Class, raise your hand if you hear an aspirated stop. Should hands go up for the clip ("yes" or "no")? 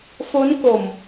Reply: no